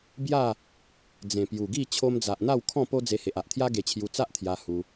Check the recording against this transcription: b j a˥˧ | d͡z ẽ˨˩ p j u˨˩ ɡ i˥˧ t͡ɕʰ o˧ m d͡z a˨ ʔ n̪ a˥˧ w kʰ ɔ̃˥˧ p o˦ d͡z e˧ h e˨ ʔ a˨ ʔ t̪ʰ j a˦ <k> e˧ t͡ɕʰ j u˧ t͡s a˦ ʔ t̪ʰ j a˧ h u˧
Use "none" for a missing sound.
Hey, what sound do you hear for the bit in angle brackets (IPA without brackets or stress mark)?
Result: ɡ